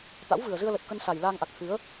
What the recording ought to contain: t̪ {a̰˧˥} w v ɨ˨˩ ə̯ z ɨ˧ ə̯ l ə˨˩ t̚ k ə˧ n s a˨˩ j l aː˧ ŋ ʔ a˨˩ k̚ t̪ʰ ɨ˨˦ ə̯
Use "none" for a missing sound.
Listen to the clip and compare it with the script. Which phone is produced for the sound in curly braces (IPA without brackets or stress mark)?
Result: a̰˧˥